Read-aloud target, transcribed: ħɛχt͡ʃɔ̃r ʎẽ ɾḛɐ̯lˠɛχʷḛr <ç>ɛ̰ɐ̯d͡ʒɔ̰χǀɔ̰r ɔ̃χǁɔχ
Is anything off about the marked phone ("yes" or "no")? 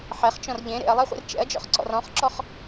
yes